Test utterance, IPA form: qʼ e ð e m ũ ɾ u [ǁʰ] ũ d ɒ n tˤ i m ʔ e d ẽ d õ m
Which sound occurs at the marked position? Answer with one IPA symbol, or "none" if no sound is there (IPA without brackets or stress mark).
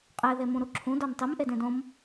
ǁʰ